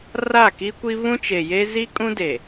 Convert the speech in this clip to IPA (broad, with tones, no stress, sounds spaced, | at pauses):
r a˦˨ k i˦ kʷ i˦ β ũ˦ t͡ʃ e˨ j e˦ z i˦ kʼ ũ˦ d e˨